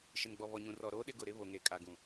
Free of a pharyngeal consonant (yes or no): yes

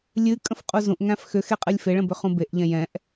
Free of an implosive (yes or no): yes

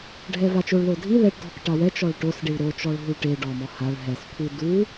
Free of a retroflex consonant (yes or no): no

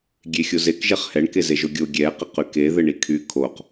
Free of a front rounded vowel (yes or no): no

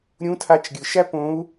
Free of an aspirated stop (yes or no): no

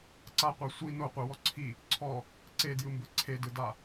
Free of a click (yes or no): no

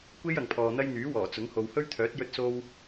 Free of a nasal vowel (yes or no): yes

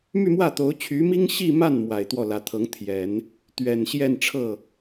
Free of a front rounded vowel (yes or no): no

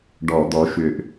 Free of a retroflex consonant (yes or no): no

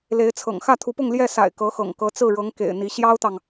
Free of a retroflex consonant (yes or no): no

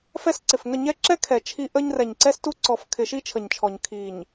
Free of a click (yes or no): no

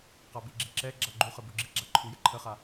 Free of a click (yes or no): no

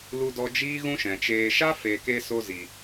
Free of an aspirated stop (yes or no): yes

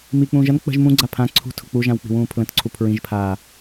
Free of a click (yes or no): no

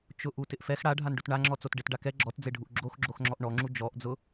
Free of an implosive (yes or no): yes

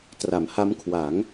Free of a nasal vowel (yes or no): yes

